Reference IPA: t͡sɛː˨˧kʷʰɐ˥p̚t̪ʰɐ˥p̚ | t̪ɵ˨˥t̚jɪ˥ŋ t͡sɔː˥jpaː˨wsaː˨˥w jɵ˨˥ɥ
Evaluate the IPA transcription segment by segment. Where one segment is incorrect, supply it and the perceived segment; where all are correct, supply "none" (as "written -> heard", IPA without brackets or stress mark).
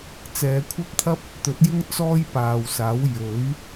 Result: none